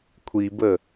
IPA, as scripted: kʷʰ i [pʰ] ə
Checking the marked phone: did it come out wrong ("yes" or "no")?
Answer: yes